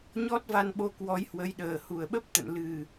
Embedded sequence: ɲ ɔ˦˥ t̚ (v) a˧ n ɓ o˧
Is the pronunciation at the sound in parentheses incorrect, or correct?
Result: correct